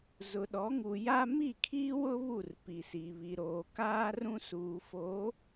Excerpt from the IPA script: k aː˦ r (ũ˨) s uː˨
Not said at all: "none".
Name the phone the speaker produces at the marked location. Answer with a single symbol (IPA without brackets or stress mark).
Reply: ũ˦